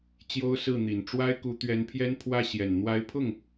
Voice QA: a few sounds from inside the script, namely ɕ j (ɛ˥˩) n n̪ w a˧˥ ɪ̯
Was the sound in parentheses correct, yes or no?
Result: no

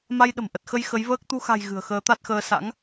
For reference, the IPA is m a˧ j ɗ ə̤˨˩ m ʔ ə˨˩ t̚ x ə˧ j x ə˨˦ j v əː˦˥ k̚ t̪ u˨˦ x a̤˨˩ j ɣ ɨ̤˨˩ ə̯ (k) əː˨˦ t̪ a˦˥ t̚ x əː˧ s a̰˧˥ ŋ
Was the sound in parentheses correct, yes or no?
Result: no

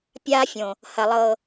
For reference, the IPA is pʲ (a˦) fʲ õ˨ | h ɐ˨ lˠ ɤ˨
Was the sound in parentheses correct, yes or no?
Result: yes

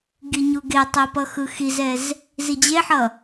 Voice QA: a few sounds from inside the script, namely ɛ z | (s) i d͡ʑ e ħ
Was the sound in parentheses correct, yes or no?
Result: no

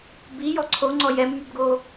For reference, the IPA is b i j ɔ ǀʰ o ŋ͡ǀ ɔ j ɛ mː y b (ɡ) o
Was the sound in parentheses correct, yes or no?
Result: yes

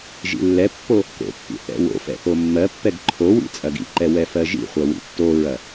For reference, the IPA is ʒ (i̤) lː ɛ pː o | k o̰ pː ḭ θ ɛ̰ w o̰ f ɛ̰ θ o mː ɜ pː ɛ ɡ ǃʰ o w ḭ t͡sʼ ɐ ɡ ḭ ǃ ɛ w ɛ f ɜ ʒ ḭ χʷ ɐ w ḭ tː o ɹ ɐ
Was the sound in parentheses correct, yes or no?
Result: no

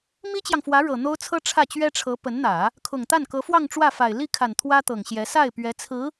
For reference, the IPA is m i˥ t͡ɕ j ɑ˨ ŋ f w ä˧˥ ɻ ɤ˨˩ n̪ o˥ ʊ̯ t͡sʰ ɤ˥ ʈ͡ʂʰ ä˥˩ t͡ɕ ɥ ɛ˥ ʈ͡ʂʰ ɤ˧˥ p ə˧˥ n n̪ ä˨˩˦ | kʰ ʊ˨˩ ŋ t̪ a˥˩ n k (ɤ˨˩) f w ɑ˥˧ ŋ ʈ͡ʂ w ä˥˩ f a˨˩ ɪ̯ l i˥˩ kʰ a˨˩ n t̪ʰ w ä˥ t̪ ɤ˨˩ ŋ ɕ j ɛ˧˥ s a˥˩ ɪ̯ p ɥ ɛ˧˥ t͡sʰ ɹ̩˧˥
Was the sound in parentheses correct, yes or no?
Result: no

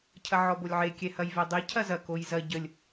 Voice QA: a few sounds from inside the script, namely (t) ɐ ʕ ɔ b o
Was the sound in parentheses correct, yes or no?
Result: no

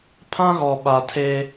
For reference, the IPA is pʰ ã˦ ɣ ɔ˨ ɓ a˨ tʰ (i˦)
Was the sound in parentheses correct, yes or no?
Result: no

